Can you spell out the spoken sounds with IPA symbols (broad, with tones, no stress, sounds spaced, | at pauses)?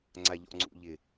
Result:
ŋ͡ǀ a˨ ʎ ɔ̰˨ ŋ͡ǀ ṵ˨ ʎ ɪ˨